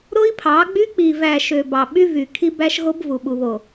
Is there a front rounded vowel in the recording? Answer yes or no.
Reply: yes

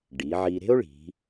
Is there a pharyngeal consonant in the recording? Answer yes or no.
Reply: yes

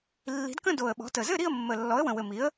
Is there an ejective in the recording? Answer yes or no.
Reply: no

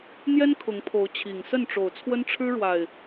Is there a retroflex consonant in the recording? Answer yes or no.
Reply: yes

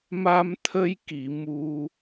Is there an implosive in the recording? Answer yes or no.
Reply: no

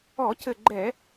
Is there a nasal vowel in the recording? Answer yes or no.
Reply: no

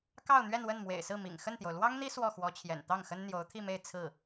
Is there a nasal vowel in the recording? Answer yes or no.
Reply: no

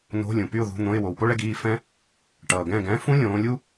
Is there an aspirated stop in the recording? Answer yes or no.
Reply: no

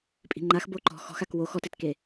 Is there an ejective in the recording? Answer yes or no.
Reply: yes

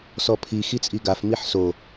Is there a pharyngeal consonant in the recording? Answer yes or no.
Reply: yes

